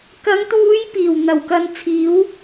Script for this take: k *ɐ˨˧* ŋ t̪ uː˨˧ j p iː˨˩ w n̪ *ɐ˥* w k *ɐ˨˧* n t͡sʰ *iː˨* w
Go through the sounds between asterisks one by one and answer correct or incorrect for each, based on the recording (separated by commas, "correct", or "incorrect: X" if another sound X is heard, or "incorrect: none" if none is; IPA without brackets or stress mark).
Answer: correct, incorrect: ɐ˨˩, incorrect: ɐ˧, incorrect: iː˨˥